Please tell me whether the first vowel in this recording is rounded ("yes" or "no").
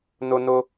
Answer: yes